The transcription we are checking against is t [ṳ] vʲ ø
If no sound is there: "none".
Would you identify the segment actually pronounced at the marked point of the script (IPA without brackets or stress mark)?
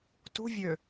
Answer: ṳ